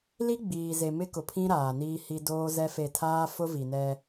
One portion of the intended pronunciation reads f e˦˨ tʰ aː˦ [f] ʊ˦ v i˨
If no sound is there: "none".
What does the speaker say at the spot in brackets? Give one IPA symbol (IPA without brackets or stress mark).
f